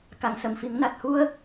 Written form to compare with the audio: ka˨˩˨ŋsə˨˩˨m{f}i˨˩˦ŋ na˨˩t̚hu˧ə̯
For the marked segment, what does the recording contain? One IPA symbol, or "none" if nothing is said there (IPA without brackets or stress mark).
f